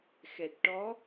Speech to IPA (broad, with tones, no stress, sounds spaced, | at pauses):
x ɛ˨˩ t̚ ʈ ɔ˧˥